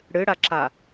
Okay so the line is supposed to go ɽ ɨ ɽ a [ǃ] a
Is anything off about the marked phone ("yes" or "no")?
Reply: yes